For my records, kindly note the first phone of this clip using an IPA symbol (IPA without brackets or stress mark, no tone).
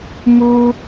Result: m